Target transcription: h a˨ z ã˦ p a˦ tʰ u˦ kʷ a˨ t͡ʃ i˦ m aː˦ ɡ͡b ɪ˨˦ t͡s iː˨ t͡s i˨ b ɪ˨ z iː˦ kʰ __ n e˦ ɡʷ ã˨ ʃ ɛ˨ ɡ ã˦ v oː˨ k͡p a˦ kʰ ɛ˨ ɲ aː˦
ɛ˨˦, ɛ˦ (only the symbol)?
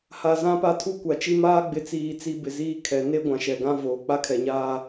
ɛ˨˦